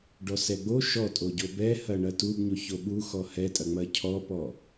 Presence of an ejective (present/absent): present